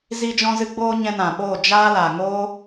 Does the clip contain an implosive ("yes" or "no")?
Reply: yes